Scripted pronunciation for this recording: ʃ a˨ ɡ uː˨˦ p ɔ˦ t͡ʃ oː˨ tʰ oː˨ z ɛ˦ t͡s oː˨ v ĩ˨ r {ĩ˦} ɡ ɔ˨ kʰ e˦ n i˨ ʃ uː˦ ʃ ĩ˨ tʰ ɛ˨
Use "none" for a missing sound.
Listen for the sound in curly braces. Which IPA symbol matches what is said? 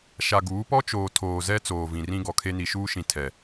ĩ˦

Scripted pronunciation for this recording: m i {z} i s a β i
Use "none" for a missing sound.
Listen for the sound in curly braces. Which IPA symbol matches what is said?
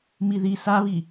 ð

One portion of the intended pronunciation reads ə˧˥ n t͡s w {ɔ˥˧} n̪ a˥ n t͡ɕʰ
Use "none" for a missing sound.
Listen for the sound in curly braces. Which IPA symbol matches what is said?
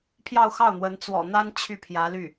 ɔ̰˨˩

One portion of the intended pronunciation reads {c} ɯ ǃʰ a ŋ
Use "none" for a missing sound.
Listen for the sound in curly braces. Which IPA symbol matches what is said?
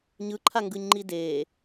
ɲ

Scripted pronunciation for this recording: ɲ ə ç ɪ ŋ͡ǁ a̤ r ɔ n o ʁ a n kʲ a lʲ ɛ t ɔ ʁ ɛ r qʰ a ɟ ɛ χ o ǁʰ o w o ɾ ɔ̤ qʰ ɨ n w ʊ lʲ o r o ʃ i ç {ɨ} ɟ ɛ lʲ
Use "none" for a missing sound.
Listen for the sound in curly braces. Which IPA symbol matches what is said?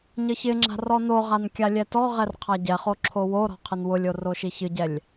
ɨ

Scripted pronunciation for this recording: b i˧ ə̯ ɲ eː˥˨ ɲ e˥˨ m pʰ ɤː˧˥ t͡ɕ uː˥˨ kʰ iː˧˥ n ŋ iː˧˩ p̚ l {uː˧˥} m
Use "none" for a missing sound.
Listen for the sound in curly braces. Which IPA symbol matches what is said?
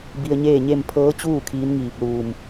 uː˧˩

